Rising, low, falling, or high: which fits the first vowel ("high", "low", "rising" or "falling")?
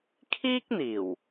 high